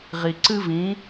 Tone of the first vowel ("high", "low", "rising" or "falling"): low